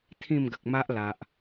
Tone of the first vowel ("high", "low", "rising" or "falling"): falling